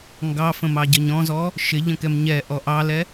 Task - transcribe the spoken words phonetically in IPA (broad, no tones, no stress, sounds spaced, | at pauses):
ŋ ɡ ɑ f ə̃ m ɑ ɟ ə ɲ ɔ̃ z ɔ | ʃ ɪ ʎ ə̃ k ɛ m ɲ ɛ ʔ ɔ ʔ ɑ l ɛ